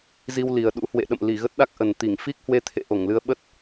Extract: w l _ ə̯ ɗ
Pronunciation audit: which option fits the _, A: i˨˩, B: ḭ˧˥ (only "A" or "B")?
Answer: A